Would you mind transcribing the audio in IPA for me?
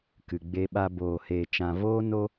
k ɨ˨ ɡ͡b e˧ ɓ a˧ b oː˨ h eː˨ t͡ʃ ã˨ v oː˧ n o˦

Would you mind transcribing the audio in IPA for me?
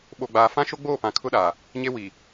ɓ o˨ ɡ͡b aː˨ f ã˦ ʃ o˦ ɡ͡b oː˦˨ p ã˨ kʰ ʊ˦ ɗ aː˨ | ɲ e˦ w i˨

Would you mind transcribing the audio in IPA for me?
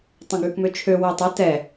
tˤ õ ɡ ʉ k m ø t͡ʃʰ ø w u tˤ ɵ t ɛ

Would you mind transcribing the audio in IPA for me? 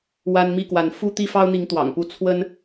w a˦ n m i˥˨ k w a˨˦ n f u˦ t̪ i˦ f ɑ˦ ʊ̯ n̪ i˨˦ ŋ t̪ w ɑ̰˨˩ ŋ p u˦ t͡sʰ w ə˦ n

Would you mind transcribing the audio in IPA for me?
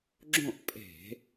ɡ͡ǁ õ˥˨ ʔ pʼ e̤˧˩˧

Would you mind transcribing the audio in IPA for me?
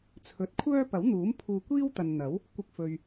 t͡sʰ ɵ˨˥ t̚ kʷʰ œː˥ p ɐ˨˥ w n̪ uː˨˥ m pʰ uː˧ kʷ iː˥ w t̪ ɐ˨ n n̪ ɐ˨˥ w | kʷ ɪ˧ k̚ f ɵ˨ ɥ

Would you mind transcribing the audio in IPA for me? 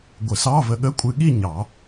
ɡʷ ə˨˩˦ s ɑ˧˥˧ v ə˧ ɠ ə˧˥˧ kʷʼ ɨ˧ ɠ i˥˧ ɲ ɑ˨˩˦

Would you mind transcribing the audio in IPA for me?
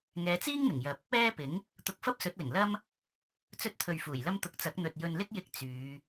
ŋ ɛː˨˧ t͡s iː˥ ŋ n̪ ɪ˨˩ ŋ j ɐ˨ p̚ | ɛː˥ p ɪ˨˥ ŋ | t̪ ʊ˧ k̚ f ɐ˥ p̚ s ɵ˨˥ t̚ l ɪ˨˩ ŋ l ɐ˧ m | t͡s ɵ˧ t̚ t̪ʰ ɵ˨ ɥ f uː˨˩ j l ɐ˧ m t̪ ʊ˨ k̚ t͡s ɐ˨˥ k̚ n̪ ɵ˨ t̚ j ɵ˨ n l ɪ˥ k̚ j ɪ˧ k̚ t͡s yː˨˧

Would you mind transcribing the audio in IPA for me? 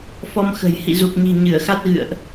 f ɔ˧ m x ə̤˨˩ j h ḭ˧˨ z u˨˩ k̚ ɲ i̤˨˩ ɲ ɨ˧˩ ə̯ x a˦˥ t̚ ɣ ɨ̰˧˨ ə̯ ʔ

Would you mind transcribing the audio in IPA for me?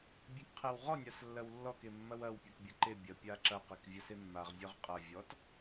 bʲ e k qʰ e w ʁ ɔ nʲ a s lː ɐ w lː ɔ k e mː ɐ w ɐ w pʲ e k bʲ ɐ ǃ e bʲ ɐ pʲ a ǁ ɐ q e k vʲ a s e mː a ʁ zʲ ɔ ʁ qʼ ɐ vʲ ɔ t

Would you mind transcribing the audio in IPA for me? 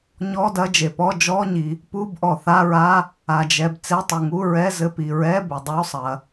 ɲ ɔ˧˥˧ d ɐ˧˥˧ d͡ʒ e˩ p ɔ˧˥˧ d͡ʒ ɔ˧˥˧ ɲ i˩ | p u˧˥˧ b ʔ ɔ˩ θ a˧˥˧ ɹ a˧˥˧ | a˩ d͡ʒ ɛ˩ b t͡s e˧˥˧ tˤ u˩ ŋ u˧˥˧ ɹ ɛ˧˥˧ z ɘ˧˥˧ p i˩ ɹ ɛ˧˥˧ b ɘ˩ dˤ o˧˥˧ sˤ ɐ˩

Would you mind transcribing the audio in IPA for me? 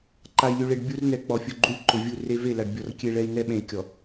ǃ a˨ i̯ lʲ u˨ ɭ e˨ ɖ bʲ u˦ r n ɛ˨ k͡p ɔ˨ fʲ ʊ˨ ɡ͡ǃ u˦ lʲ ǃ ʊ˨ vʲ u˦˨ r e˦ v e˦˨ l a˨ ɖ bʲ ɔ˨ r kʲ e˦ ɭ ɛ˦ i̯ n ɛ˦ ɓ ẽ˨ i̯ kʲ ɔ˨

